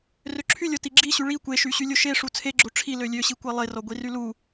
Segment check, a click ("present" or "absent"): present